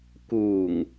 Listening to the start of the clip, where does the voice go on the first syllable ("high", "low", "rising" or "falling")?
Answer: low